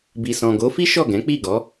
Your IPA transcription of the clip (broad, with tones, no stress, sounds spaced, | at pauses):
b i˨ s ɔ̃˨ ɡ o˨˦ f i˦ ʃ ɔ˦˨ ɡ ɛ̃˨˦ k͡p i˦˨ ɡ ɔ˨˦